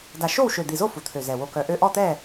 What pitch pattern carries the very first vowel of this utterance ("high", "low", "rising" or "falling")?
low